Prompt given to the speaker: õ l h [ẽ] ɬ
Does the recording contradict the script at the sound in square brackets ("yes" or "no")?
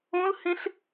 no